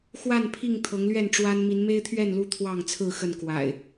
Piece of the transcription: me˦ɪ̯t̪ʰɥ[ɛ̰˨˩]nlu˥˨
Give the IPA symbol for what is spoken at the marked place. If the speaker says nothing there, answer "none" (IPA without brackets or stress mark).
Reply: ɛ˥˨